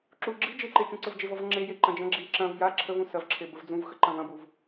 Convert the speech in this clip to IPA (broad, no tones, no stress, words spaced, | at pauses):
ǁu ɡ͡ǁi d͡ʒeǃe t͡ʃũǀəvd͡ʒevɔv ŋ͡ǁeje ǃɐ̃d͡ʒɐ̃ ɡ͡ǁi ǁɐ̃v ja ǁʰəvũ sɐvǁʰe bəvd͡zũvxə ǃɐ̃vɐ̃buv